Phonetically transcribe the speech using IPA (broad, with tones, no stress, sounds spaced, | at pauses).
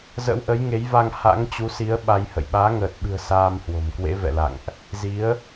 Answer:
z ə̰˧˥ w ʔ ə˨˦ j ŋ e˨˦ j v a˧ ŋ h a̰˧˥ ŋ t͡ɕ u˨˦ s i˨˦ ə̯ ɓ a˧ j h ə̰˧˨ j ɓ aː˨˦ ŋ əː˨˩ t̚ ɓ ɨ̤˨˩ ə̯ s aː˧ m h w o̤˨˩ m k w ḛ˧˥ v ɛ̰˧˨ l a̰˧˨ ŋ ʔ | z i˨˦ ə̯